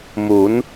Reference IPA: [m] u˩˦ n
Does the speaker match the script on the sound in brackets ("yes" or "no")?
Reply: yes